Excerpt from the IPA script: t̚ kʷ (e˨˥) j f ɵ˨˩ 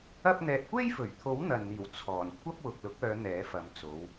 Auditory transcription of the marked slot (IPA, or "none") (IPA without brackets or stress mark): e˥